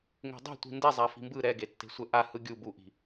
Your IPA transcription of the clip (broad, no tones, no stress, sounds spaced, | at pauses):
ŋ e̤ dˤ i̤ tʷ i̤ n d e zˤ a f i̤ m b ɯ ɾ ɛ ɡ e tː e̤ sʷ ɛ ʔ a h ɯ ɡʲ u b u ʔ i̤